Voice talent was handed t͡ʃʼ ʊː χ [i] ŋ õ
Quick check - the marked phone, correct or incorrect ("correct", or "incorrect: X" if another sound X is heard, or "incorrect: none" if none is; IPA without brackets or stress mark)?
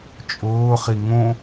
correct